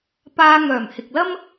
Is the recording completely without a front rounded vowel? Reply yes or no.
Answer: no